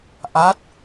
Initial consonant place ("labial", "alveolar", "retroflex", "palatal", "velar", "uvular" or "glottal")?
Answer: glottal